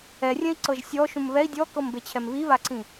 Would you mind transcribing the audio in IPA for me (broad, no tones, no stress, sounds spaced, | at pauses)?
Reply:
ɛ rʲ ɛ̃ i̯ ǀ ɤ ʒ sʲ ɔ ʃ ũ m β ɛ i̯ dʲ ɔ k ɤ m b e t͡ɕʰ ɛ m β i β a ǀ ĩ